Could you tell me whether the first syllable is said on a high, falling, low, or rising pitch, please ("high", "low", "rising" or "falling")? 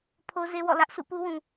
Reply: high